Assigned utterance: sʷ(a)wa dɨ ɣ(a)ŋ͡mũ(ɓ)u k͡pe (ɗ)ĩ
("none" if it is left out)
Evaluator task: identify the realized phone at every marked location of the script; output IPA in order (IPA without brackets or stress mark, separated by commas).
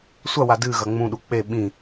ɐ, ɐ, ɗ, ɓ